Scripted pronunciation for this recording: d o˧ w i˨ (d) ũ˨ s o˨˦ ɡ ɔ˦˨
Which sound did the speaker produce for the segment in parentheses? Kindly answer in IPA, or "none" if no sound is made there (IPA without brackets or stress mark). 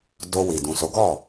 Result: d